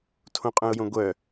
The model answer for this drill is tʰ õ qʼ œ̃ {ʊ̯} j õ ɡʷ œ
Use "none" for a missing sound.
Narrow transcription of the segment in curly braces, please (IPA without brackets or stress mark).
ʊ̯